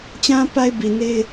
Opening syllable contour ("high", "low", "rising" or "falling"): high